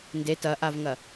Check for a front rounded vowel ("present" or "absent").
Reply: absent